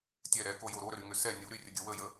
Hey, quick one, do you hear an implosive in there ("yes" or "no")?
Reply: no